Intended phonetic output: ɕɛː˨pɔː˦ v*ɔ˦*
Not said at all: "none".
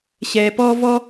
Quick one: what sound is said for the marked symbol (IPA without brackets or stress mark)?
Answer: ɔ˦